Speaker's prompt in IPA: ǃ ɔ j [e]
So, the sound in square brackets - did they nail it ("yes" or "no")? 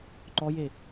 yes